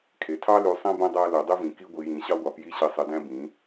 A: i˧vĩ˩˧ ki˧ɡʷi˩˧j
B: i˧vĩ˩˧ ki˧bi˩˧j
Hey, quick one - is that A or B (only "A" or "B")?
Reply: A